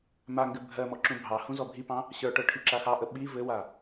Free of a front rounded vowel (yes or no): yes